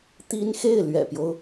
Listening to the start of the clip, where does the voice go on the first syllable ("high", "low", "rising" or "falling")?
high